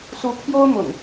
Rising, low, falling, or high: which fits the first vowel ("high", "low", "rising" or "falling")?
rising